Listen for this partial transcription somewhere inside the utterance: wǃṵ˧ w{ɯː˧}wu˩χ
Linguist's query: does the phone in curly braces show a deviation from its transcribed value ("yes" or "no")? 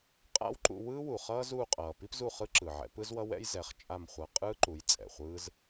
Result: yes